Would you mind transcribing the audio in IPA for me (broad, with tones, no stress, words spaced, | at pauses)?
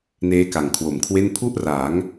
neː˦˥ka˨˩ŋkʰwo˨˩mkʰwe˥˩n pʰu˥˩ʔra˩˦ŋ